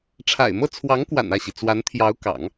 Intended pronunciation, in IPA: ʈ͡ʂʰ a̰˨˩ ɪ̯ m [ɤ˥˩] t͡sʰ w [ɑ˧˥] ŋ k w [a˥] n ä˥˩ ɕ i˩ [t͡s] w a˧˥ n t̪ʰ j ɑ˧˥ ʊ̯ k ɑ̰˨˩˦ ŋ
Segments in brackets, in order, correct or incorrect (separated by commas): correct, correct, incorrect, correct